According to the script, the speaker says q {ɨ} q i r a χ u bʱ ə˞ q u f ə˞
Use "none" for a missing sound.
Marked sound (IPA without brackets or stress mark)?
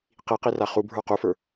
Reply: i